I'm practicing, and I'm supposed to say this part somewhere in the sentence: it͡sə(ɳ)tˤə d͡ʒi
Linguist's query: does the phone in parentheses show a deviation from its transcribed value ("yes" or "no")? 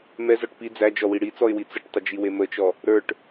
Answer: yes